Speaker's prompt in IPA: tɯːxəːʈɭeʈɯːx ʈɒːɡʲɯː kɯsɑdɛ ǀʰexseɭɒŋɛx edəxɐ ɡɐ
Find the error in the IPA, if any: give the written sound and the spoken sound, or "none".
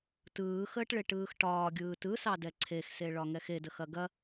k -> t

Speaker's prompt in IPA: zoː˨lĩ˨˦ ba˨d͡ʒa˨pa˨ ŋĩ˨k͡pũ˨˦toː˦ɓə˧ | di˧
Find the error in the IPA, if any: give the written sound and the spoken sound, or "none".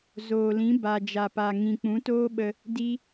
none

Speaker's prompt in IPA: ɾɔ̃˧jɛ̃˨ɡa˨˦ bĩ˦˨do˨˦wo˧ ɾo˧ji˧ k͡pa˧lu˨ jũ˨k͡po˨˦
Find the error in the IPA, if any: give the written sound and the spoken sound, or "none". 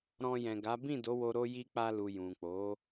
none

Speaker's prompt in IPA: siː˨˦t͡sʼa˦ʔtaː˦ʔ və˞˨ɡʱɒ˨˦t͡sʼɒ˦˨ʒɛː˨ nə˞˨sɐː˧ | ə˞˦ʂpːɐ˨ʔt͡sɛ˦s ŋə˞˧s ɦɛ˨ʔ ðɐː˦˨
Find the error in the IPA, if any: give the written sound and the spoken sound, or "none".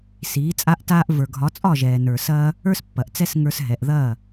ʂ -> s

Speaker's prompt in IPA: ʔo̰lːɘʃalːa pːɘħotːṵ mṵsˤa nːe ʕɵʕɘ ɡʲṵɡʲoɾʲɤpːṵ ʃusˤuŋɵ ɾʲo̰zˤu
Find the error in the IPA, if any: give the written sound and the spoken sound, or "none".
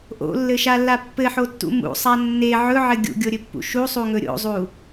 ɤ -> ɵ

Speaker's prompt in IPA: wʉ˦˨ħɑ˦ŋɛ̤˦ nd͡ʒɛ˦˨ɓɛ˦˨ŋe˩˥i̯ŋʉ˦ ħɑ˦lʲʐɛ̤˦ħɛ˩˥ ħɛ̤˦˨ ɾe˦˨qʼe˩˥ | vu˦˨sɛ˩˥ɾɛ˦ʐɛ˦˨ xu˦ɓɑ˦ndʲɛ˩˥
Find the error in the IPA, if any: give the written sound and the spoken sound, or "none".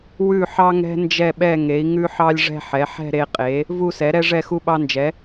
dʲ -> d͡ʒ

